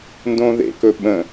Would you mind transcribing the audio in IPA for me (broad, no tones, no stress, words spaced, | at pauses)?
ndõːðḛkɵ ɓə̃